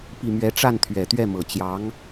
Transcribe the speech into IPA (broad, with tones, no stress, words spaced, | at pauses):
pi˥˩mɥɛ˥ ʈ͡ʂa˥˩nt̪ʰɥɛ˨˩t̪ɥɛ˥˩mɤ˨˩ t͡ɕjɑ˧˥ŋ